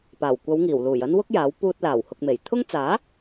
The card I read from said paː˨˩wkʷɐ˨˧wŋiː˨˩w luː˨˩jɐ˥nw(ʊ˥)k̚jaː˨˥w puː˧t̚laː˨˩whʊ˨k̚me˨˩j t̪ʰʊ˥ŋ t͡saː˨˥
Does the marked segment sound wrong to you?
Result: no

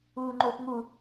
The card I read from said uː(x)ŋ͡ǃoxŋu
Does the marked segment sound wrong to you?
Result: yes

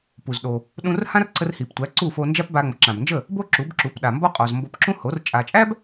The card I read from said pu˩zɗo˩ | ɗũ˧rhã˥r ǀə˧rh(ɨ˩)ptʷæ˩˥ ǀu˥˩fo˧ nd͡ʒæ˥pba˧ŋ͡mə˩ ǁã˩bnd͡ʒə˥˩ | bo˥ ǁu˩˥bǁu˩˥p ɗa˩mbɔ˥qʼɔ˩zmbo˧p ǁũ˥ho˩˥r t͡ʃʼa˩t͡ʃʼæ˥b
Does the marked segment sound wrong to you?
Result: yes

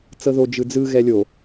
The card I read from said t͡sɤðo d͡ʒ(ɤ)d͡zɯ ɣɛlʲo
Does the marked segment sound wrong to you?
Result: yes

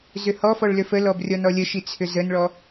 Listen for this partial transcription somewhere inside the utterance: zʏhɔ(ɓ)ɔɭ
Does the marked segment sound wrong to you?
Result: yes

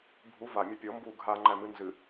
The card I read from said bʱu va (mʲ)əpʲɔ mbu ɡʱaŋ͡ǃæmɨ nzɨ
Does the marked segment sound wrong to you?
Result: no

